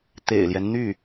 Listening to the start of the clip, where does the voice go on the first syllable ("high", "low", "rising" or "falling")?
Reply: low